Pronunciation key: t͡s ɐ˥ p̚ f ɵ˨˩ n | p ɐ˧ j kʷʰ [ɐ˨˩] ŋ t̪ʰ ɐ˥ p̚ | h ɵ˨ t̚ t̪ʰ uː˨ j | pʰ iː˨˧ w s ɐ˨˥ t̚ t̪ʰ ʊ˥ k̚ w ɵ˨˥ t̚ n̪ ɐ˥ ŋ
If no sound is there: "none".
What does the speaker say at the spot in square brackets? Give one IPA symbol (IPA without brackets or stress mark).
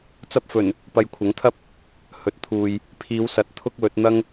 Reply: ɐ˨˥